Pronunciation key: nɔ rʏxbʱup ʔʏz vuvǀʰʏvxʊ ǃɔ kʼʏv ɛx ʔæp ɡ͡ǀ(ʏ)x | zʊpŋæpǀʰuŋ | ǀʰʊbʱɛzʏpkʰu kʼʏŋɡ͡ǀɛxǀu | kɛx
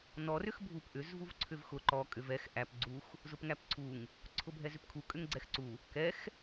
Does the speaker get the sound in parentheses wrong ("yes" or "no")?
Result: yes